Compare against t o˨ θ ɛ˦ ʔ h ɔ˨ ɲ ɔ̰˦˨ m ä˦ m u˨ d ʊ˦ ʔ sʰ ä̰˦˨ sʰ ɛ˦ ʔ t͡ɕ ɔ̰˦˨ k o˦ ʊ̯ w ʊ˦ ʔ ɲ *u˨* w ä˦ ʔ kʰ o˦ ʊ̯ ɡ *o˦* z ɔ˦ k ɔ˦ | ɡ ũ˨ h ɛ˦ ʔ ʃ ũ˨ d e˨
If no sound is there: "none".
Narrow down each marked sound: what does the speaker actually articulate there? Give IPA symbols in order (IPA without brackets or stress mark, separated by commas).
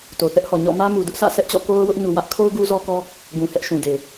u˨, u˦